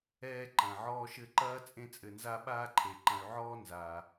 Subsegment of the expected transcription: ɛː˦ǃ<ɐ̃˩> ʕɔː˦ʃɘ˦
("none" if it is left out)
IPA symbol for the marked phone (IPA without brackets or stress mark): ɐ̃˩